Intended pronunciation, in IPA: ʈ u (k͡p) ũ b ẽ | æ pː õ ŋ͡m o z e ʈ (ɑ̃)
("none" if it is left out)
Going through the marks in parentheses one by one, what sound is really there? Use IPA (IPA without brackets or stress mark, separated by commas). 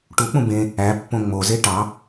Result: k͡p, ɑ